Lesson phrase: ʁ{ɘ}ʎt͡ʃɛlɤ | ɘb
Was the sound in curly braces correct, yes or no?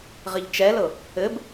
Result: yes